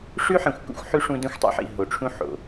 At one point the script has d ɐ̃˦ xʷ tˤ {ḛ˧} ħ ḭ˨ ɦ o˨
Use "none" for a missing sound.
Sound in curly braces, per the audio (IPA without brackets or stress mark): ḭ˧